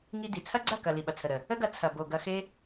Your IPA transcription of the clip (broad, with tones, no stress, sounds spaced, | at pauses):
ŋ i˧ d i˨ t͡sʰ ɐ˦ ɡ͡ǀ ɐ˦˨ k ɐ˨ l i˨ ɓ ɐ˨ t͡sʰ ə˨ ɾ ə˨ | ə˦ ɡ ɐ˧ t͡sʰ ɐ˨ b o˨ ɡ ɐ˧ x e˦